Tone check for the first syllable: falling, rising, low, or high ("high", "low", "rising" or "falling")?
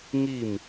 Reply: falling